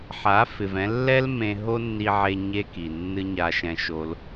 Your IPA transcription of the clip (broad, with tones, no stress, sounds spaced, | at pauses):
ħ a˨˦ f ɪ˨ v ɛ̃˧ lː ɛ˦ l m ẽ˧ ɦ o˦ nː i˧ ʕ e˧ ɲ e˦ k i˨ nː ɨ˦ ɲ a˧ ʃ ɛ̃˧ ʃ o˧ l